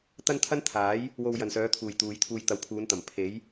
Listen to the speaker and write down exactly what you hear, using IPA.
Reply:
t̪ ɐ˥ n t̪ʰ ɐ˥ n t̪ʰ aː˨˥ j | w o˧ w j ɐ˨ n s œː˨˧ t̪ʰ uː˨ j t̪ uː˨˧ j t̪ʰ uː˧ j t̪ ɐ˨˧ w pʰ uː˨˧ n t̪ ɐ˨˩ m pʰ e˨˥ j

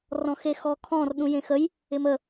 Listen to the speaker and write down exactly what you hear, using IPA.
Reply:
r ɔ̃ x e x ɔ kʰ ɔ̃ r ɗ ũ j ẽ x ə j | ɪ m ə

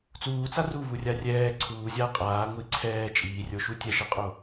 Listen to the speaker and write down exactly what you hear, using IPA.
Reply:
t͡s uː t͡s a r u v u rʲ a rʲ ɛː ǀʰ uː zʲ aː qʼ aː ŋʷ i ǀʰ ɛː t͡ʃʼ iː rʲ o ʃ u tʲ ɛ ʃ ɤ qʼ o

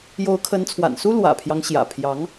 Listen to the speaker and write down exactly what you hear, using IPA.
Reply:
j o˧˥ ʊ̯ kʰ ə˧˥ n t͡sʰ w a̰˨˩ n s u˥ l w ä̰˨˩ pʰ j ɑ˦ ŋ ɕ j ä̰˨˩ pʰ j ɑ˧˥ ŋ

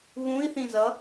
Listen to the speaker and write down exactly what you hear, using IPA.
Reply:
β ũ i̯ θ ĩ z ʌ

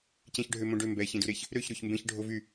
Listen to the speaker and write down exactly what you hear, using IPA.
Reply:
c ɛ̃ ç ɖʱ ø m õ ɖ ø m b ɛ ç ẽ d u ɾ e ç | ɾ ø ç ɾ o ç m b ẽ ç ɖʱ o v y

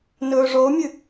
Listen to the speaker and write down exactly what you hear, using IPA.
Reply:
n ɵː ʐ o mʲ ɨ

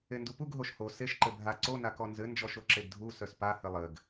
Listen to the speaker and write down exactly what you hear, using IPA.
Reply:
e n d u p u ɡ ɦ o ʃ h o s e ʃ ǃ ɘ bʱ a ǀ o n a k ɔ n z ɘ n d͡ʒ ɔ ʃ o ǁ e ɡ dʱ u s œ s p a h ɘ lˠ ɘ ɡ

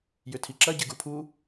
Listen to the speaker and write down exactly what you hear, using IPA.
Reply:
j ʏ tʰ i ǁ ɐ ɟ ɪ ɡ u pʰ u

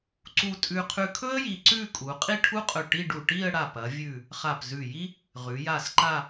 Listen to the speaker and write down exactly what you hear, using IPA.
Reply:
ǀ u˥˧ tʼ ʉ˧ qʰ ʉ˧ kʰ ɵ˥ ə̯ j i˧ ǀ ʉ˥˧ kʼ u˩˧ qʼ i˥˧ ʈʰ u˥ qʼ ɵ˧˩ ʈ i˥˧ ɖ u˧˩ ʈ i˥˧ ə̯ ɽ a˧˩ p ɐ˩˧ vʲ ʉ˧˩ | χ a˧˩ p z ʉ˧˩ j i˥ | ʁ ʉ˩˧ j a˧˩ s ǃ a˥˧

